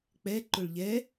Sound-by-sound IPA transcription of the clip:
k͡p ɛ ǃ ʊ ɭ ʎ ɛ

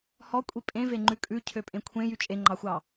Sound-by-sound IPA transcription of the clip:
h ɔ kʷʼ i pʼ ẽ v e ŋ͡ǃ ʉ kʼ ʉ cʰ ø pʼ ẽ kʷʰ ẽ j y t͡ʃʼ e ŋ͡ǃ ɑ xʷ ɑ

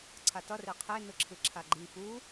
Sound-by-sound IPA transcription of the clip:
ǀʰ a t ʌ r e qʰ e n ɯ ǁʰ ɯ ǁʰ a ɡ͡ǃ i p u

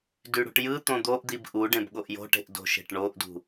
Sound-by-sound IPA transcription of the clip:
d y ɽ ṳ ʈ j ɯ t̪ õ d̪ o ʔ d̪ i b ʔ u ɖ ẽ b ɠ o ʔ j o̤ ʈ e̤ ʔ d o̤ ʃ e̤ ʈ ɳ o ʔ d ṳ

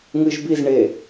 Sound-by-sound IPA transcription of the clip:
ŋ ɨ ʒ b i z ɳ e

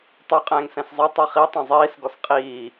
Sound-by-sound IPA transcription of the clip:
tˤ y qʼ ɛ̃ː ŋ s ɛ̃ s zˤ e tˤ ɛ χ i tˤ ɛ̃ zˤ iː s ɡ ɔ s qʼ iː

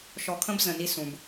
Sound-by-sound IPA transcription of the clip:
ʃ ɔ˨ kʰ ə̃˦ b z ə̃˨ n i˦ s ũ˨ b

